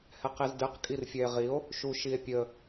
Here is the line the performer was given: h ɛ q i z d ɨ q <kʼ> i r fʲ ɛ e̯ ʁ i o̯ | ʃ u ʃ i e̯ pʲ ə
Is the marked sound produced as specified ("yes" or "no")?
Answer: yes